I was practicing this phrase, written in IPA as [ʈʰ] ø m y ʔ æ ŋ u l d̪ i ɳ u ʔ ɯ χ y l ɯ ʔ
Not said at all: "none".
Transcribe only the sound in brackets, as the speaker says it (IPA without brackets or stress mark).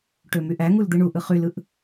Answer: ʈ